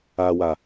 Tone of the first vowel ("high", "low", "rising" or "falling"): low